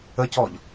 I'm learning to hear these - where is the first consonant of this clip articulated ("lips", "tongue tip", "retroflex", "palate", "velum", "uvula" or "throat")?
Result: palate